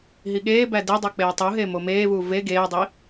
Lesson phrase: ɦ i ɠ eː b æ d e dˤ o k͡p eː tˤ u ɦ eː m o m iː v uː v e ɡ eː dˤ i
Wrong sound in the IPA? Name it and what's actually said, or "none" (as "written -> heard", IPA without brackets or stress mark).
iː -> eː